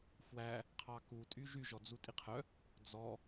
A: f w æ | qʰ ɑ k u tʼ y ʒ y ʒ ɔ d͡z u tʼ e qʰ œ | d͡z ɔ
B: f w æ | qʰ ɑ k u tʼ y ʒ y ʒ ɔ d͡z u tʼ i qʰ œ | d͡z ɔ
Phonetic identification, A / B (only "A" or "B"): B